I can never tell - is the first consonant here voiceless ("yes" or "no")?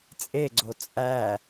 yes